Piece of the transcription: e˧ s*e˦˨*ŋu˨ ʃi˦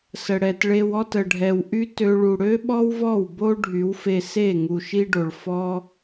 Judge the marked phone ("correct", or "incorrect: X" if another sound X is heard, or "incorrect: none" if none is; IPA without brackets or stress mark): correct